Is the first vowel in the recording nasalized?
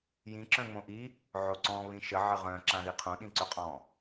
yes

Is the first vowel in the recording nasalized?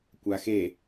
no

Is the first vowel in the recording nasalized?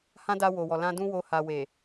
yes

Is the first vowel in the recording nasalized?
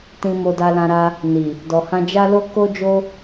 yes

